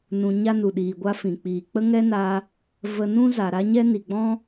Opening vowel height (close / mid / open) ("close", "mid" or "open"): close